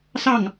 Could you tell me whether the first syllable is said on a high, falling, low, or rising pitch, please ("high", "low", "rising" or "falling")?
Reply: falling